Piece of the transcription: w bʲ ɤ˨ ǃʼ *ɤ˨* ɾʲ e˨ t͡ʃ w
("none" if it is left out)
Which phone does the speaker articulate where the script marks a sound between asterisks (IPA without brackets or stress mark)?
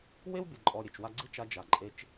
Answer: ɔ˨